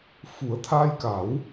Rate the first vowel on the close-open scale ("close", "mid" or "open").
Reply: close